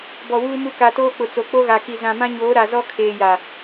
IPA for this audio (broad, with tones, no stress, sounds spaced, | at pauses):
b ɔ˨ w uː˦ m u˦ k a˨ t oː˦ k͡p ʊ˨ t͡s o˨ k͡p o˦ ɣ a˨ k i˨ z ã˨ m ã˦ ɲ oː˨˦ ɾ a˨ z ɔ˦ kʰ eː˨ j a˨